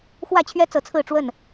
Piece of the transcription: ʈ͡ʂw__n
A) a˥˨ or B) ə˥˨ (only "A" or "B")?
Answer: B